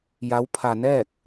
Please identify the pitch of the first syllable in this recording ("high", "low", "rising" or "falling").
rising